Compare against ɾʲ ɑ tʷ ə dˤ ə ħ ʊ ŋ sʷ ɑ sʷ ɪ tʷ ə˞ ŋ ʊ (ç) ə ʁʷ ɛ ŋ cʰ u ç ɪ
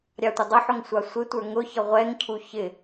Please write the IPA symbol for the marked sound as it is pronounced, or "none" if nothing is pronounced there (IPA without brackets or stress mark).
ç